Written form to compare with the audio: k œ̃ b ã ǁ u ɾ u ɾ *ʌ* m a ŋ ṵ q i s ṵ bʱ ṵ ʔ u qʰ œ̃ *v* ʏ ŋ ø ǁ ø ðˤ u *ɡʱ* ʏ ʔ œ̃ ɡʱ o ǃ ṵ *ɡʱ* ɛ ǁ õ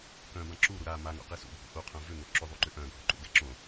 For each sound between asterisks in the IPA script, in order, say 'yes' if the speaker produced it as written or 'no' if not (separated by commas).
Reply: no, yes, no, no